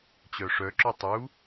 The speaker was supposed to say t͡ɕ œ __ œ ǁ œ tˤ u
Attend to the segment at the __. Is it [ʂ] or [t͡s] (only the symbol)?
ʂ